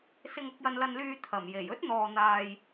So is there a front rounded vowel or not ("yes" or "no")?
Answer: yes